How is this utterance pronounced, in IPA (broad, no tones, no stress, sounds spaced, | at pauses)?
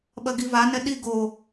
ɓ ɐ ɡ i v a n ɛ ɗ i ɡ o